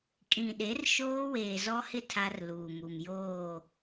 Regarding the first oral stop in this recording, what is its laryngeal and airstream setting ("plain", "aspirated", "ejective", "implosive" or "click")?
ejective